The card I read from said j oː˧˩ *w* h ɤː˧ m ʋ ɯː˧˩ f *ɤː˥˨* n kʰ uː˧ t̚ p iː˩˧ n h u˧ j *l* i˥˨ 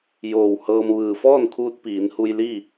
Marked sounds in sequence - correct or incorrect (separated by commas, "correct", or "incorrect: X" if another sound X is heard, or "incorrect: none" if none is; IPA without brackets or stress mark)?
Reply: correct, incorrect: ɔː˥˨, correct